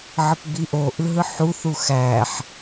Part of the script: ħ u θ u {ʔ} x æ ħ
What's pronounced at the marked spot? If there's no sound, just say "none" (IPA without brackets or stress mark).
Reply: none